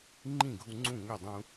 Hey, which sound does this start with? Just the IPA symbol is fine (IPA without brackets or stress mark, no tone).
ŋ͡ǃ